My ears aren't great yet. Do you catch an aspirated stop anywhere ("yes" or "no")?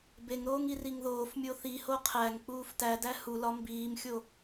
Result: yes